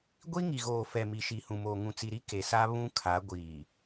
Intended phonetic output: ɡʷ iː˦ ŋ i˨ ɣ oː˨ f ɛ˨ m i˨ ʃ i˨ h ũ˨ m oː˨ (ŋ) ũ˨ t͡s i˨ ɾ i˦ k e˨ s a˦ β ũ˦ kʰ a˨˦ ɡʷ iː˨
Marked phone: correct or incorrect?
correct